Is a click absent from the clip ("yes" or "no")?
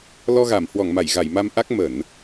yes